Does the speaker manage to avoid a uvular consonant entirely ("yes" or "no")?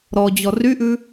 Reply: yes